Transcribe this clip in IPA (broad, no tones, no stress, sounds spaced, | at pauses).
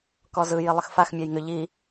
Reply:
k ɔ z ɯ j i lˠ ə x f a x mʲ æ j ŋ ʏ ʎ i